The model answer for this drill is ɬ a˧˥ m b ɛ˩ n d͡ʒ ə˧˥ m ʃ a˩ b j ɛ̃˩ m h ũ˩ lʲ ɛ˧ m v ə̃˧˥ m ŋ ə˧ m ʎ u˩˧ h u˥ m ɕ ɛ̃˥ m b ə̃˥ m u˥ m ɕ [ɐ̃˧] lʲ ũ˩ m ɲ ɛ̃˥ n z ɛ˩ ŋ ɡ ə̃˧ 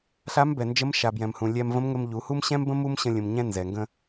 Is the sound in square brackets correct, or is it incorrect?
incorrect